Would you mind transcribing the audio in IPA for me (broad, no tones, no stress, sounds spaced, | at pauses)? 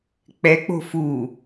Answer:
k͡p ɛ k͡p o̤ f u